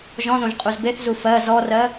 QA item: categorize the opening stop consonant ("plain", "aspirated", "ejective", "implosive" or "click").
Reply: ejective